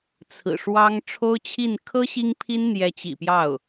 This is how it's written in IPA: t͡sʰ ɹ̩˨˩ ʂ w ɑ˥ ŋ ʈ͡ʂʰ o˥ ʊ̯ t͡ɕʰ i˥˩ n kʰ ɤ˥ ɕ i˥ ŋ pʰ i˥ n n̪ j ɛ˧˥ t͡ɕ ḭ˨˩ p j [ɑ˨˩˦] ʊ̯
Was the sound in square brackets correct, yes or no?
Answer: no